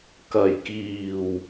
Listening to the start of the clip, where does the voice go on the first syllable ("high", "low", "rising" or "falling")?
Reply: low